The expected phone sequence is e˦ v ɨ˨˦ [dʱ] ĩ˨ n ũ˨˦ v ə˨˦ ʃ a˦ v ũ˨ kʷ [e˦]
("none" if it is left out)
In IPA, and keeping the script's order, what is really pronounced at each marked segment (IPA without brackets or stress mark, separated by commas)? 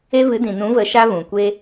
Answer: d, e˦